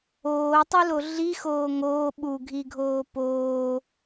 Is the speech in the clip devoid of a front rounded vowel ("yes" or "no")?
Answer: yes